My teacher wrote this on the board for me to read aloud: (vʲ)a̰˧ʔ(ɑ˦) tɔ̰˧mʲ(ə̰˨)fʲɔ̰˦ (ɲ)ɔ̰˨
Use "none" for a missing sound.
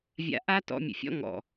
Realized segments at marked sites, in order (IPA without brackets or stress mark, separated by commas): vʲ, a˦, ə̰˨, ŋ